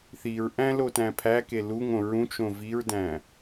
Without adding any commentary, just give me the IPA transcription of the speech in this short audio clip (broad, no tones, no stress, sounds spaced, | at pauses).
θ i ɹ ʔ æ̃ l o t æ̃ pʰ æ k e l u ŋ õ ɹ ũ t͡ʃ õ v i ɹ d æ̃